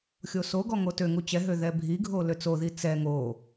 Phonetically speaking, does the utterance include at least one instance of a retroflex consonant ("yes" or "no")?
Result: no